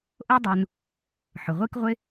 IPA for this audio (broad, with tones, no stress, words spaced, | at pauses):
ʔo˥dˤu˨n | ħʊ˩ʁʷi˥kʁʷɪ˥